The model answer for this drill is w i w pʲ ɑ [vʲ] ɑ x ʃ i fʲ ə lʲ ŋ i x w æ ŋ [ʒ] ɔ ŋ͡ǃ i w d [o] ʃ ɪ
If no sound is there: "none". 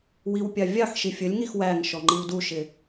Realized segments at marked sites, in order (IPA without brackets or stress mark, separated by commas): vʲ, ʃ, u